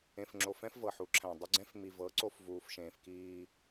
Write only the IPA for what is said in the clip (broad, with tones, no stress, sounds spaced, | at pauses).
ẽ˨ f ŋ͡ǁ o˨ f ɛ̃˦ f v ɤ˨ ħ u˨˦ ǁʰ æ̃˨ dˤ ʏ˦ ɡ͡ǀ ɛ̃˦ f m i˨ v ɤ˨˦ ǀ o˦ f v uː˨ f ʃ ẽː˨ f k iː˦